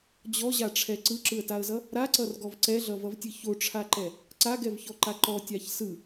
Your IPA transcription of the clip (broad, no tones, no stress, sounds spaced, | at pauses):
d͡ʑ ɔ ʑ a ʈ͡ʂʰ ɛ ǀ ɯ ǁ ɯ ə̯ t a ə̯ z ʌ | ɾ a ǀ ʌ r ɡ ɔ v ǀ ɛ ɮ ʌ v ʌ v tʲ ɯ ç o ʈ͡ʂʰ a ǃ ɛ | ǀ a ɡ ɛ v ç ɔ ǃ a ǃ ɔ tʲ a ç s ɯ